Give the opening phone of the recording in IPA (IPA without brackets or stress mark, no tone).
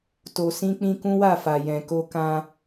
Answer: t